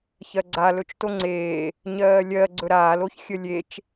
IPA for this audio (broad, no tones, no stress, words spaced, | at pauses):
çɜɡ͡ǀa lɵt͡ʃtoŋ͡ǀeː | ɲɜːlʲɜ ɡ͡ǀɵɾaːl oçxʲəlʲet͡ʃ